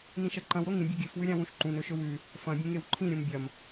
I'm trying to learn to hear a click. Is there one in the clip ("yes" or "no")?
yes